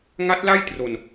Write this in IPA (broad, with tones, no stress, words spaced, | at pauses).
ŋa˦˥t̚ la˥˩jtro˧n